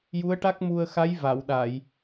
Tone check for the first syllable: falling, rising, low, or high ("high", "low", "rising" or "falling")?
rising